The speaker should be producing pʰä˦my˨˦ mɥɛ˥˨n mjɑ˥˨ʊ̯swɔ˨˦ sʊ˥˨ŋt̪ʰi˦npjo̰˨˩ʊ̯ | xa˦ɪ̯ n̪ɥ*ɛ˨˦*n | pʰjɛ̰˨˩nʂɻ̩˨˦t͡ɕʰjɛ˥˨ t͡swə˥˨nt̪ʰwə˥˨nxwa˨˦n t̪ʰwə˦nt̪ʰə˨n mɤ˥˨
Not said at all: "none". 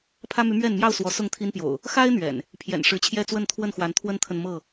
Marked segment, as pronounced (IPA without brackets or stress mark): ɛ̰˨˩